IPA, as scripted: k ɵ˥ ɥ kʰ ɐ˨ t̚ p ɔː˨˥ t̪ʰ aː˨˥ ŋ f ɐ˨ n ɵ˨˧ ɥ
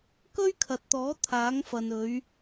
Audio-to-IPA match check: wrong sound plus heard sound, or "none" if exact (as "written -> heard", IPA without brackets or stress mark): p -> t̪